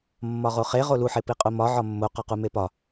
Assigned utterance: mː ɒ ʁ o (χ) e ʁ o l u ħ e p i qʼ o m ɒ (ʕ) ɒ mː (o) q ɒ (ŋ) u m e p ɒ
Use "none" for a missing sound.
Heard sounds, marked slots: χ, ʕ, o, q

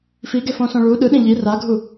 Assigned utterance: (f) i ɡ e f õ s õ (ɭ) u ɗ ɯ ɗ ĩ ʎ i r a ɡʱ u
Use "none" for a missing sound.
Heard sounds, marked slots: f, ɭ

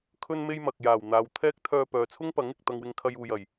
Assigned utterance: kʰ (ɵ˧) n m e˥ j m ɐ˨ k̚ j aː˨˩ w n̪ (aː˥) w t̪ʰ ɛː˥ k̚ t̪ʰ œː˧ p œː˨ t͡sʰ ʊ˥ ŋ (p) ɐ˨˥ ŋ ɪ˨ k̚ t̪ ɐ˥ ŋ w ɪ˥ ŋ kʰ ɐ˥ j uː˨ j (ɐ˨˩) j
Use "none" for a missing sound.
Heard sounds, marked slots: ɵ˥, aː˨, p, ɐ˨˩

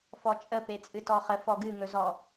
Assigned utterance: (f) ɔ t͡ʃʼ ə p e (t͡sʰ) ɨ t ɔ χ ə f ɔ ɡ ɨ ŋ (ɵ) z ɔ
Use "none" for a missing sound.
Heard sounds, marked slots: f, t͡sʼ, ɵ

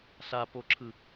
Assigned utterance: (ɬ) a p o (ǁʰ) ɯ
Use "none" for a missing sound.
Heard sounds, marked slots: ɬ, ǁʰ

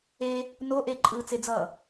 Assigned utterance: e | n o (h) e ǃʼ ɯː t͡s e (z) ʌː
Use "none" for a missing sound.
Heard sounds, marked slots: ʔ, d͡z

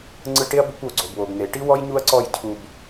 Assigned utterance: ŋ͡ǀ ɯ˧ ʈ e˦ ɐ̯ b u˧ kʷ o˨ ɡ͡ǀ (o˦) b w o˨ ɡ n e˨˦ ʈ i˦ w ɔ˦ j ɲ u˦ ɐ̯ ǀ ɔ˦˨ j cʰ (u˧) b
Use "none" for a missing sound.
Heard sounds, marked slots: o˨, u˧

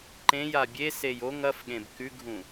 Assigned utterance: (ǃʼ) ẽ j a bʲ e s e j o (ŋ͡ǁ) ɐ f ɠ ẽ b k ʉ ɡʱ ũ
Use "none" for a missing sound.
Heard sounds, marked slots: ǃ, ŋ

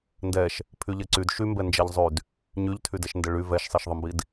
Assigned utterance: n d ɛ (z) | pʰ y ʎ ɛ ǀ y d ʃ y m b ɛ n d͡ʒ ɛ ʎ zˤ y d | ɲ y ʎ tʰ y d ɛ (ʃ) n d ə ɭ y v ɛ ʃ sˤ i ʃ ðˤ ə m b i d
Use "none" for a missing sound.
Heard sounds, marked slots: ʃ, ʃ

